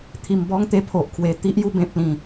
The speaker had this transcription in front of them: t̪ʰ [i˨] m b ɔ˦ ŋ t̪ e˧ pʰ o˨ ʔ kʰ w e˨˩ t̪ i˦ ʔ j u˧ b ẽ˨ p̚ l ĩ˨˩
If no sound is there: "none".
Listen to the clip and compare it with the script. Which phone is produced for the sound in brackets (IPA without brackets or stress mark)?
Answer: i˧